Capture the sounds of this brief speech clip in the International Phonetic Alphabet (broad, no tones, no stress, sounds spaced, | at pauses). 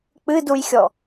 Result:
k͡p ɨ d u j xʲ ɔ